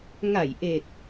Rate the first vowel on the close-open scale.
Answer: open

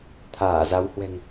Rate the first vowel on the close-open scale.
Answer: open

